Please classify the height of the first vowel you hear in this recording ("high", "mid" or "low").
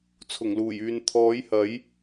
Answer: high